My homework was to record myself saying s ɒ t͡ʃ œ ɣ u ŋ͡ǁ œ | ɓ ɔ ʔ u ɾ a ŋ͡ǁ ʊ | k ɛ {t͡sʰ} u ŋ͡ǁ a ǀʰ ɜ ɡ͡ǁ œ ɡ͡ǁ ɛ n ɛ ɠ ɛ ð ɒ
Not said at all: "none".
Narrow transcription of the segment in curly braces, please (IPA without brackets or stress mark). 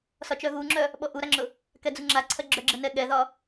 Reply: d͡z